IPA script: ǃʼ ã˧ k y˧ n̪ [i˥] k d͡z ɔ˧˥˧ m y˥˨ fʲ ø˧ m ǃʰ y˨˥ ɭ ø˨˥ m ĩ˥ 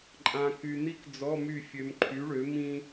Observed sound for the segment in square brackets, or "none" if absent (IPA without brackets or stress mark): i˥